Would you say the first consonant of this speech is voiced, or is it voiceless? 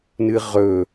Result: voiced